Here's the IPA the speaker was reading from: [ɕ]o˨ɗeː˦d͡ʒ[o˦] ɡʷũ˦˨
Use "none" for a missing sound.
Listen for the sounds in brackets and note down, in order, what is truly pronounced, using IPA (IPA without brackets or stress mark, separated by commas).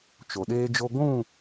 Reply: t͡ʃ, o˦